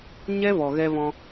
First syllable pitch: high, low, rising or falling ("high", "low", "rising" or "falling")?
high